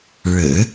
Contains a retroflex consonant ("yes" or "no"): yes